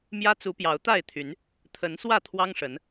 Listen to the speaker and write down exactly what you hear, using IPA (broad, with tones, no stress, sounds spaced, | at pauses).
m j ä˦ t͡s u˨˦ p j ɑ˨˦ ʊ̯ t̪ a˥˨ ɪ̯ t̪ʰ y˨˦ n | t̪ʰ ə˨˦ n s w ä˥˨ t̪ʰ w ɑ˦ ŋ ʂ ə˨˦ n